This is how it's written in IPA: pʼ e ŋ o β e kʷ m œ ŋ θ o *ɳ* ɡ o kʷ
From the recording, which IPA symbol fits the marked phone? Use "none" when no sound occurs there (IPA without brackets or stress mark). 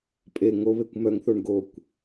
ɳ